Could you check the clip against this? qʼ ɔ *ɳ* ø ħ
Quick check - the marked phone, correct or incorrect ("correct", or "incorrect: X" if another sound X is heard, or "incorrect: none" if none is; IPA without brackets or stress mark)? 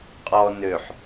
incorrect: n